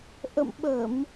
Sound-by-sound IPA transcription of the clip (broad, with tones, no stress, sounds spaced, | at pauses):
ʔ ə̰˧˨ m ɓ ə˧˩˨ m